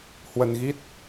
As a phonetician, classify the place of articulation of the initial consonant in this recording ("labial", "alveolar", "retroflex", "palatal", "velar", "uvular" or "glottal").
glottal